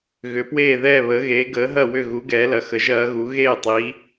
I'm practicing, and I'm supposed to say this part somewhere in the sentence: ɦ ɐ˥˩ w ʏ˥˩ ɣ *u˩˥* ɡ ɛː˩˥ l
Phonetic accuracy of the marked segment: correct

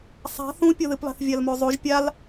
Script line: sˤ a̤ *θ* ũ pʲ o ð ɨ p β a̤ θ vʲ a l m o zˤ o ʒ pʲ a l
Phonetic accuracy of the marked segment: correct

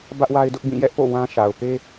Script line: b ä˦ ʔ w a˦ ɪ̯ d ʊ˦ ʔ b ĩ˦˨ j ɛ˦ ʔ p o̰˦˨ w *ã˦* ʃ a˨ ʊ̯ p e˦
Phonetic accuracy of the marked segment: correct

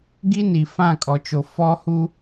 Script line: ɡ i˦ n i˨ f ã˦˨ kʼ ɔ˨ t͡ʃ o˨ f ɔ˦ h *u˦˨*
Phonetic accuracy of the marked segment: incorrect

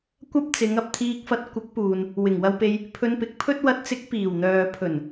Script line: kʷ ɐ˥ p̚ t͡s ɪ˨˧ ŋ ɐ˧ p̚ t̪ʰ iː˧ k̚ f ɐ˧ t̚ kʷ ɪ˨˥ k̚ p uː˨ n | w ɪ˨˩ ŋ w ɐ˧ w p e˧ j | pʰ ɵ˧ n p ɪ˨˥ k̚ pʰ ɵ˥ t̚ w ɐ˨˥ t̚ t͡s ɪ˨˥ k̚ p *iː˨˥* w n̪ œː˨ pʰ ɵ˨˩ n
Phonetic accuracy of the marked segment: incorrect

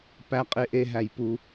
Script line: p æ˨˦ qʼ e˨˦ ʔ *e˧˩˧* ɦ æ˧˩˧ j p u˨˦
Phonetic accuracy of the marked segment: incorrect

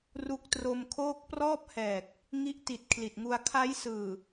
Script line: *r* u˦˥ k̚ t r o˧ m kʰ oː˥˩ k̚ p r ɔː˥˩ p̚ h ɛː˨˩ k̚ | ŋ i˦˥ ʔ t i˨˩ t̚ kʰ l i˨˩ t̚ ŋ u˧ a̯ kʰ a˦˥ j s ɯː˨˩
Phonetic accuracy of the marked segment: correct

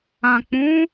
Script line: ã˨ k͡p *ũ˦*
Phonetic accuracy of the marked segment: incorrect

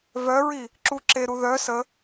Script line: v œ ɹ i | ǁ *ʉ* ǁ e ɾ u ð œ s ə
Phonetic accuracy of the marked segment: incorrect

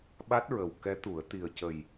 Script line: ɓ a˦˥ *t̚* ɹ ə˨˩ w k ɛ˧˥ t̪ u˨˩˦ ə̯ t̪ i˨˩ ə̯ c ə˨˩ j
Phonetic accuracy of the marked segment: correct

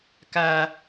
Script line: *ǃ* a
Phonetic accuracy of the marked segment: incorrect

